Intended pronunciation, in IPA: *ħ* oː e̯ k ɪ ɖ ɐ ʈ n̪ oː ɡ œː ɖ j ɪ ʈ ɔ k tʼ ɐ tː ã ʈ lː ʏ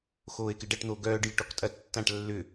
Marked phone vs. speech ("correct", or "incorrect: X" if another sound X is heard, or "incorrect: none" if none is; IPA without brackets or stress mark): incorrect: x